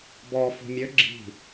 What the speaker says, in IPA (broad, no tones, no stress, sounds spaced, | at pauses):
b ɔ f ṳ mʲ ø ɡ͡ǁ i̤